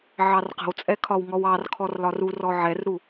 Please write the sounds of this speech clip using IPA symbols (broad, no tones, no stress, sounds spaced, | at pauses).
ʕ ɑ r q ə̤ w t͡sʼ ɛ kʰ ɒ w ŋ ɔ w ɑ r kʰ ɔ r l ɒ r u r ɔ ʕ ɛ r ɾ u